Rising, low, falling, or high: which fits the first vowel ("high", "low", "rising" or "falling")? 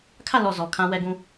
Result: falling